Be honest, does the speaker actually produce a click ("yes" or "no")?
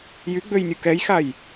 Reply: no